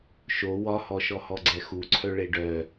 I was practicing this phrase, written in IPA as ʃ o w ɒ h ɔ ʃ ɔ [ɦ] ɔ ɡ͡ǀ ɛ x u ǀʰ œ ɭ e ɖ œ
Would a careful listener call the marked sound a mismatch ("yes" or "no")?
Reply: yes